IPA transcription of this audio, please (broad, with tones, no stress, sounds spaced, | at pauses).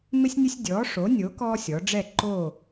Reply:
m ɪ˦ sʲ nʲ ʊ˦ sʲ dʲ ɔː˨˥ ʂ o˨˥ nʲ o˨˥ k ɔː˦ sʲ ɔ˩˧ ɖ͡ʐ ɛ˦˨ ǃ oː˦˨